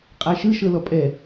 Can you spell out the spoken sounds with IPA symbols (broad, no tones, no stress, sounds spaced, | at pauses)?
qʼ a ʃ ɯ ʃ ɤ l ɔ pʼ ɛ